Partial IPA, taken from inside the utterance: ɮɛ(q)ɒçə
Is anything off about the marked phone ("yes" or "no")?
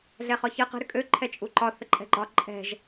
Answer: yes